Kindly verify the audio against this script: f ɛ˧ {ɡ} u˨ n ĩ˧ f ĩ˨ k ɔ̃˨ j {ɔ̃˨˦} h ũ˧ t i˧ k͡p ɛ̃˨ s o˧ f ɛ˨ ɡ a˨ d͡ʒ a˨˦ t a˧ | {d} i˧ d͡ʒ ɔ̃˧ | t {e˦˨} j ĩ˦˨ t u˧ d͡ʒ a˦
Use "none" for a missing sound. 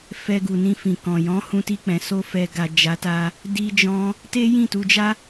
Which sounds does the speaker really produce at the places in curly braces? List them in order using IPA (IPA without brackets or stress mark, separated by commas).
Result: ɡ, ɔ̃˨˦, d, e˦